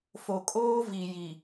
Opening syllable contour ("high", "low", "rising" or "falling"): low